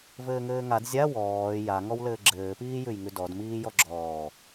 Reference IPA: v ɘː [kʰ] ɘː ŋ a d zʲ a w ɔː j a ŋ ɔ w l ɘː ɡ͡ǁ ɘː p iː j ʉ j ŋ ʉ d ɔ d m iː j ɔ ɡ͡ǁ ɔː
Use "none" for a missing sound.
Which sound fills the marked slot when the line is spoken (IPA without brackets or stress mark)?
ŋ